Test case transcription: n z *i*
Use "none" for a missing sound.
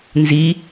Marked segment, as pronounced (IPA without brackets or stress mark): i